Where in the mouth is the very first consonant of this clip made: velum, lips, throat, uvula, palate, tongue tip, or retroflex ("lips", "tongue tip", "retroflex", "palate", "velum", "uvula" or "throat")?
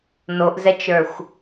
tongue tip